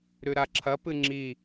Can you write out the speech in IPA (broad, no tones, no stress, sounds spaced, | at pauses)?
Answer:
ɾ ʉ ɾ a ǁʰ ɐ p ɨ ŋ͡ǁ i